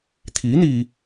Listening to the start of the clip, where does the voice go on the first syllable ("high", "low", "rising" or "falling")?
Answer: rising